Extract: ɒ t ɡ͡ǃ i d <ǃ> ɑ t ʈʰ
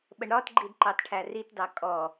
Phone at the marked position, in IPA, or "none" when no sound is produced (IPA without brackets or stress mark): ǃ